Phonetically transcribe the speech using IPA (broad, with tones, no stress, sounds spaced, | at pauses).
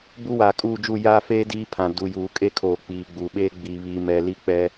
b u˦ w aː˨ kʼ uː˦˨ d͡ʒ u˦˨ j aː˦ f eː˦ d iː˦ pʰ ã˨ d u˨ j uː˨ kʼ e˦ kʰ oː˨ k͡p iː˨ ɡ͡b uː˨ ɓ eː˦ ɡ͡b i˨ β iː˨ m ɛ˨ l i˦ k͡p ɛ˦